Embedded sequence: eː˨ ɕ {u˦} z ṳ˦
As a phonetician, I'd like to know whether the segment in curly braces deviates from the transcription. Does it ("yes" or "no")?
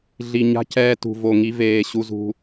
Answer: no